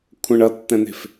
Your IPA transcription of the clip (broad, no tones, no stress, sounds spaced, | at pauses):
kʷʰ ə̃ ɳ ʌ tː ɛ̃ n̪ e̤ f